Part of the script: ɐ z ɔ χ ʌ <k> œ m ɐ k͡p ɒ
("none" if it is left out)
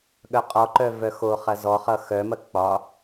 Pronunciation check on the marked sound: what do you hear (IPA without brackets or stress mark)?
x